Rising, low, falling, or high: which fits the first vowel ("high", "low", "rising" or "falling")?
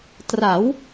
rising